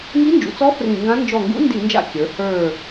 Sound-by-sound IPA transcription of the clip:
ŋ i˧˥ n d͡ʒ ṵ˩˧ t͡s ɔ˧˥ f r ĩ˧˩˧ ŋ ɡ ã˧˥ n d͡ʒ ɔ˧˩ ŋ ɡ ṵ˧˥ n d i˧˩˧ n d͡ʒ a̰˧˩ kʲ ə˞˩˧ h ə˞˧˩

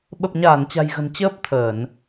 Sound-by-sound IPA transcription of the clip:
ɓ ə˨˩ p̚ ɲ aː˧˩ n t͡ɕ a̤˨˩ j ɣ ə̤˨˩ n t͡ɕ əː˦˥ p̚ t̪ʰ əː˧˩˨ n

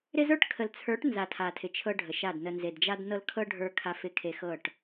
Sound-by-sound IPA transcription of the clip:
ɾ ɪ˦ z ə˞˦ ʈ kʰ ə˨ l t͡sʰ ə˞˨˦ ʈ n z a˨ tʰ a˨ tʰ ɪ˨ t͡ʃʰ ɤ˦ ɖʱ ə˨ ʃ a˦˨ d n ə˨ n z e˨ d d͡ʒ a˦ d n ɤ˦ l kʰ ɤ˦ ɖʱ ə˞˦ kʰ a˨ f ɪ˨ kʰ e˨ x ɤ˦˨ ʈ

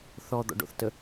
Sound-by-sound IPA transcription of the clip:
θ ɔ d̪ ɔ̰ ɖ o̰ θ t ə

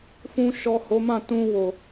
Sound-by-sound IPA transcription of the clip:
f ũ˧ ʃ ɔ˨ h o˨˦ m ã˦˨ t ũ˧ w o˨

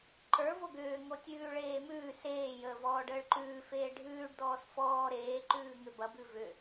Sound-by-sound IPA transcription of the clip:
ǃ ə˞ v o ɡ ʏː ŋ o tʲ ʉː ɭ eː m ʉː s eː j əː v ɔː ɖ əː ɭ ǃ ʉː f eː ɖʱ ʉː ɖ d ɔː s f ɔː ɾ eː ǃ ʉː ŋ ʏ b ɐ b ʉ v ʏ

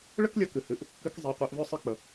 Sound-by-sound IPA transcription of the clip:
ɭ ə˥ k lʲ ʌ˧ k ɨ˩ h ɨ˩˧ ʔ | k ɨ˧˥ k zˤ i˩˧ qʷ e˩˧ ʔ v œ˥ sˤ ɨ˥ k͡p ə˩

